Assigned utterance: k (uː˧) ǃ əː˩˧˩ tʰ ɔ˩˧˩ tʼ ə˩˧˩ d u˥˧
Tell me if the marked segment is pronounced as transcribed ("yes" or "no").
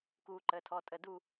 yes